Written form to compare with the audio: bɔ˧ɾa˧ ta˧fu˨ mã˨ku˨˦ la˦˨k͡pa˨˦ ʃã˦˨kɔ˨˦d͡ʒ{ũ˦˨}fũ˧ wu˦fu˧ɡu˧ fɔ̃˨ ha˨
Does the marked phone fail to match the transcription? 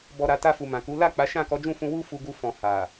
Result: no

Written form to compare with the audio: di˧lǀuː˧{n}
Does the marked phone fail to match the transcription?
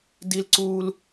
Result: yes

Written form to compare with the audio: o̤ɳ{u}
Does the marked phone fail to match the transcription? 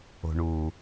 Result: no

